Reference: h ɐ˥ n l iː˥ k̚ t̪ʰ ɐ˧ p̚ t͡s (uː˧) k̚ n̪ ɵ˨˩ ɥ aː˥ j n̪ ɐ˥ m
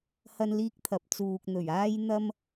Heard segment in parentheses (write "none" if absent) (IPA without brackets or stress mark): uː˧